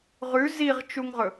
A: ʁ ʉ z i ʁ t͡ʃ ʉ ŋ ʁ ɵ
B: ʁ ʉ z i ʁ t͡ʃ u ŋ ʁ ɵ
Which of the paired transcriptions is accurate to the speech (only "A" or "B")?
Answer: B